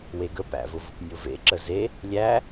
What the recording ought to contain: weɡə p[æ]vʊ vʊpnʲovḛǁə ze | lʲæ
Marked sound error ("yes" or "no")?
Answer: yes